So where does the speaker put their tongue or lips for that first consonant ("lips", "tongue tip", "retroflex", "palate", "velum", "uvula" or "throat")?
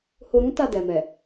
throat